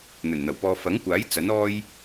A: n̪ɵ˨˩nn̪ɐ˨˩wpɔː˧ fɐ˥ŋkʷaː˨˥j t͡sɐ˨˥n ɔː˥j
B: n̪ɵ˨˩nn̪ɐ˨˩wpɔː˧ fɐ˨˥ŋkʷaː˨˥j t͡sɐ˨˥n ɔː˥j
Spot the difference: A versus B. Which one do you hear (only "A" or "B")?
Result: B